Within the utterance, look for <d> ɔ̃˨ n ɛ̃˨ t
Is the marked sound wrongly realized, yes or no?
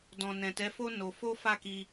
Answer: no